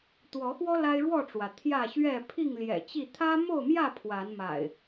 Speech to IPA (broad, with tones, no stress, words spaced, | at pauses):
t̪wɔ˨˦xwɔ˦ la˦ɪ̯ɻwɔ˥˨ʈ͡ʂwä˩ t̪ʰjä˥˨ɕɥɛ˥˨ pʰi˥˨ŋljɛ̰˨˩t͡ɕi˥˨ t̪ʰä˦mo˥˨ʊ̯mjä˥˨ pʰwa˨˦nma̰˨˩ɪ̯